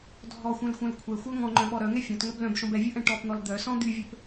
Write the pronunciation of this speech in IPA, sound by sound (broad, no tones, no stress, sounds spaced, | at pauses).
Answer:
dʱ ɔ xʷ œ̃ l xʷ œ̃ l kʷʰ ɛ xʷ œ ŋ ɔ̃ ŋ͡ǃ œ̃ ɓ ɔ ɾ œ ŋ ɛ fʲ ɔ̃ t ŋ œ b l œ̃ b ʃ ɔ̃ b ɛ vʲ ʊ ʔ ɛ̃ ʈ ɔ p n̪ ɔ l d̪ œ s ɔ̃ d̪ y vʲ ø p